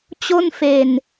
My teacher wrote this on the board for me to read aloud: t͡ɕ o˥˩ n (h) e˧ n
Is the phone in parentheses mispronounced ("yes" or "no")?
yes